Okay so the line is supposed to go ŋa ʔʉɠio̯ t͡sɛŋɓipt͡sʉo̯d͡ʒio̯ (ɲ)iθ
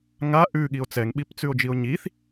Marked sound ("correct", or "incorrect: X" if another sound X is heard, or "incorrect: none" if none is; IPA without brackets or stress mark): correct